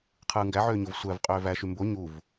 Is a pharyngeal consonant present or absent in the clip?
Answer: present